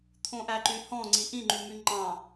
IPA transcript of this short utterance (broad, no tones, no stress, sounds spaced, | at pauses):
t̪ʰ õ ʔ æ ǃ y h ɔ̃ ŋ͡ǀ i ʔ ĩ ŋ͡ǃ y m y ŋ͡ǃ ɑ̃